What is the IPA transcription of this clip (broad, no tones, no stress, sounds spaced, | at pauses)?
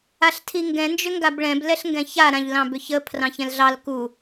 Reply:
a ɬ tʰ i ŋ ɡ ɛ̃ n d͡ʒ ʏ ŋ ɡ a b ɭ ɛ̃ b l ɛ ɬ ŋ ɡ ɛ̃ ç a ɾ ã ʎ l ɑ̃ b ʏ ç ə pʰ r ɑ̃ ç ɛ̃ l ɮ ɑ l k u